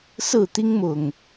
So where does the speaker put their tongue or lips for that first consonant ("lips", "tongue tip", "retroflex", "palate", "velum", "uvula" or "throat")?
tongue tip